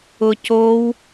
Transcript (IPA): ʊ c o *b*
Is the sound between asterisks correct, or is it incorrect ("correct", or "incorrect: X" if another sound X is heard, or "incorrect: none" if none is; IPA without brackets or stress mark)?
incorrect: w